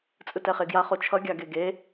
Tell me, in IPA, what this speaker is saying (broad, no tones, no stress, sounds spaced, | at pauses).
t͡sʼ ɯ t ɛ χ e ɡ j a χ o t͡ʃʰ ʌ ɡʲ a ɡ e ɡ e